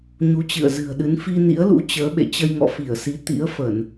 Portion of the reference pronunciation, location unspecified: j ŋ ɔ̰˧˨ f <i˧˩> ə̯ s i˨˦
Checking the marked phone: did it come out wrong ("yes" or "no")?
no